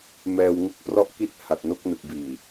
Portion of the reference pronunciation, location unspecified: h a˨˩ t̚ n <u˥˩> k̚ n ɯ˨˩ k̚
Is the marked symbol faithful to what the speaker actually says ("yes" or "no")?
no